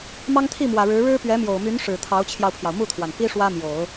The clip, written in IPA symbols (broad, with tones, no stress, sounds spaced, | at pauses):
m ɑ˥ ŋ t̪ʰ i˥˩ m w ä˨˩ ɻ ɻ̩˧˥ ɻ ɻ̩˥ p ɥ ɛ˧˥ m j o˨˩ ʊ̯ m y˧˥ n ʂ ɻ̩˨˩ t̪ʰ ɑ˧˥ ʊ̯ t͡ɕʰ j ɑ˧ ʊ̯ pʰ j ɑ˩ ʊ̯ m u˥˩ t̪ʰ w a˩ n p i˥ ʂ w ä˥ m j o˨˩˦ ʊ̯